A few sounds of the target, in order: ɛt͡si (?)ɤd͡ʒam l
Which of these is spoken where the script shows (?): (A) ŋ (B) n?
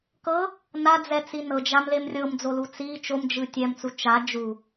B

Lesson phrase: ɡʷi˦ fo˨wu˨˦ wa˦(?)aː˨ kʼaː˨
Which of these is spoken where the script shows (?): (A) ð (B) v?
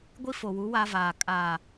B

